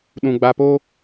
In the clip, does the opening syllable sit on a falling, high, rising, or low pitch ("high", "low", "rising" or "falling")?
low